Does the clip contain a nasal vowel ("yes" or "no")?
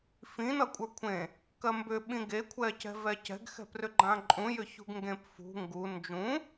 yes